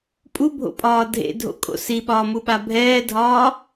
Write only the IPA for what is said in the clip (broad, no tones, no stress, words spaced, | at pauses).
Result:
pʼubʱo̰pʼɒː dʱḛdʱo̰kʼo̰ siɓɒːmuɓa bʱɛːdʱɒː